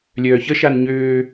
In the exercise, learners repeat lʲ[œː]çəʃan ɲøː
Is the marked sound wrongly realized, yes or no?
no